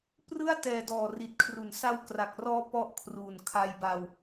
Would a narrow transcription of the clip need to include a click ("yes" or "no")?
no